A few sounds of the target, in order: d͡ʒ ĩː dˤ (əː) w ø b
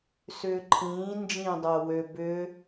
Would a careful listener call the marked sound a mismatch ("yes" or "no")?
no